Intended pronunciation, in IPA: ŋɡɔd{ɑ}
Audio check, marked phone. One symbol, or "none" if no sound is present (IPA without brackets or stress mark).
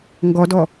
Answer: ɔ